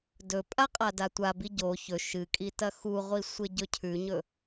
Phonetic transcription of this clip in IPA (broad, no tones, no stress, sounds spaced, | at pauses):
d ɵ pʼ a qʼ a d a tʷ a b i ɟ o ç ɵ ʃ ɨ kʼ i t ɐ x u ʁʷ i sʷ e ɟ ɵ cʰ ʉ ɲ ɵ